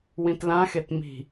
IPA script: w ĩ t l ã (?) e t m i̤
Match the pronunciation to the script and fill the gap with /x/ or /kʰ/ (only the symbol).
x